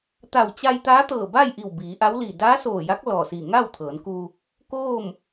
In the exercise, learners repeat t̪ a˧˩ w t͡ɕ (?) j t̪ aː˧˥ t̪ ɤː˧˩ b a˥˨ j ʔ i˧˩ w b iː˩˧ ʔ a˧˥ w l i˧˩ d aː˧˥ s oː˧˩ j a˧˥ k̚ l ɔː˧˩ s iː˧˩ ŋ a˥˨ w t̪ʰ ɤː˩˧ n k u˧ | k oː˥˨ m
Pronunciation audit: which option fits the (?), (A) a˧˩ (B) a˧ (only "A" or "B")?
B